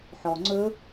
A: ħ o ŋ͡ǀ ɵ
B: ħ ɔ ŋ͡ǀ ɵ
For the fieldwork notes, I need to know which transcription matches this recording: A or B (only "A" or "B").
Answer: B